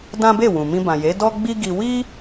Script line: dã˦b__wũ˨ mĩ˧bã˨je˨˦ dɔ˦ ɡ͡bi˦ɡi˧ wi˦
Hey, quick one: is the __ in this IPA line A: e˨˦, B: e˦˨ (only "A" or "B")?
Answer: B